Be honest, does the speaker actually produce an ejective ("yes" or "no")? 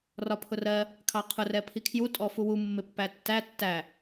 yes